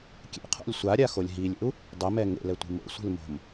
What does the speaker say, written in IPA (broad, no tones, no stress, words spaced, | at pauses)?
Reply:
kʲḛqʰo̰lʲ sʷaɾʲaxolʲ ɦilʲḛu̯ | dˤɪmɛ ŋḛlɛtʷi̤ mo̰sʷi̤l mo̤m